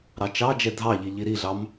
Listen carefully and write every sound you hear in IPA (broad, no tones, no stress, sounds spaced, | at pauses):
ɾ ɑ t͡ʃ ɑ d͡ʒ ɛ dʱ ɑ ʎ i ʎ i ɾ i ɮ ɑ m